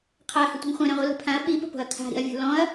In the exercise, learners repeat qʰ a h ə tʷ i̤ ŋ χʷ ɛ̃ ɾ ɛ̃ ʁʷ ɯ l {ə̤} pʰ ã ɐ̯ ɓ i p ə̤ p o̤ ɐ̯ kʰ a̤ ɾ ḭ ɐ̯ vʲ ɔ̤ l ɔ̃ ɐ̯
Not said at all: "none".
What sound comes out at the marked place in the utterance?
ə̤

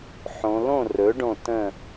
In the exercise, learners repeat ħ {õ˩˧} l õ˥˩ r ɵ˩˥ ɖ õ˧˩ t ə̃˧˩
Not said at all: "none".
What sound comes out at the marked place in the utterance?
õ˩˧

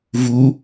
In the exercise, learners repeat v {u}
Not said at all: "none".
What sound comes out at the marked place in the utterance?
u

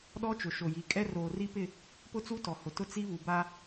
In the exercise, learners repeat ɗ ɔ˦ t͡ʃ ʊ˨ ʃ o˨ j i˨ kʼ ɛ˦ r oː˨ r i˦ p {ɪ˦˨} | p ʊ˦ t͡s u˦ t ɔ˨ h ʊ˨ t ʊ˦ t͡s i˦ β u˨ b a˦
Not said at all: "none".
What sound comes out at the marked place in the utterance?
ɪ˦˨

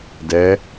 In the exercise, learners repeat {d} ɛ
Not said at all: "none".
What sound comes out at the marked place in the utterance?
d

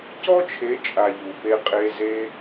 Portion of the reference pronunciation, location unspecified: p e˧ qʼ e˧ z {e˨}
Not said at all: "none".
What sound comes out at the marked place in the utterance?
e˦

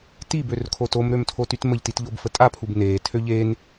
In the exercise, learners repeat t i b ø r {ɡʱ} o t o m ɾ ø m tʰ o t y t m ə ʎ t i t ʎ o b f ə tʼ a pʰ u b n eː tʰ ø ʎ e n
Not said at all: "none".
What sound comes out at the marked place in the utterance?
kʰ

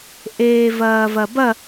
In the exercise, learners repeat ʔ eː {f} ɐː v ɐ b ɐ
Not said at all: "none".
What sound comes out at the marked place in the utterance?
v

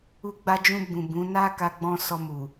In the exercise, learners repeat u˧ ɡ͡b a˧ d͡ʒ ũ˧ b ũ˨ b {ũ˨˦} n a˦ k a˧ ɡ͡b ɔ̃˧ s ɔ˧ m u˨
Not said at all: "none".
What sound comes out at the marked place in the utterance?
ũ˨˦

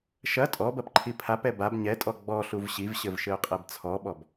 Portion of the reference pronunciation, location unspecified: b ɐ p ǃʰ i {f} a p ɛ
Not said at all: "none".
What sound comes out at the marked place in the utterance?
pʰ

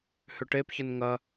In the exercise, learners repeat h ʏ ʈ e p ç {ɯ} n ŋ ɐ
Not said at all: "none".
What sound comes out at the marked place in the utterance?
ə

